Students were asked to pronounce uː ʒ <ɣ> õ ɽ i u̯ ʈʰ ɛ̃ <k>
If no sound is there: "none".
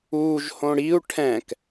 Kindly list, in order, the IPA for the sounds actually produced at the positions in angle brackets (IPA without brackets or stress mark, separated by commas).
h, k